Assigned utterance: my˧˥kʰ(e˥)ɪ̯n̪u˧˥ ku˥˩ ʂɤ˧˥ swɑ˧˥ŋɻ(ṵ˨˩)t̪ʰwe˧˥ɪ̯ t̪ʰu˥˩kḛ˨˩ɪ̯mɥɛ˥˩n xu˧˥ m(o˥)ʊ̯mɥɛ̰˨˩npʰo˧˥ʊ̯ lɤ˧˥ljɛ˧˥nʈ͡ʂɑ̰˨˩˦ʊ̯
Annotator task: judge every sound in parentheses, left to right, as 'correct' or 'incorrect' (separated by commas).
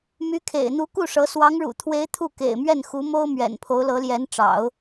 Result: incorrect, correct, correct